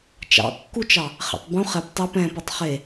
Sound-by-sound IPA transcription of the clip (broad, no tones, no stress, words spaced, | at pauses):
t͡ʃɑ̰kːut͡ʃɑ | χɛ̰tˤbũ χɛp tˤep ɛ̃pɐtˤ χe